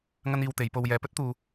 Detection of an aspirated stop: absent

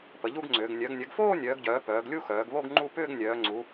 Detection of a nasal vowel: absent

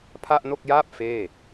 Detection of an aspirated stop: present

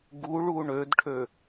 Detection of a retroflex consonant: present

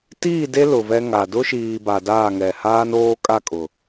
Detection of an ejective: present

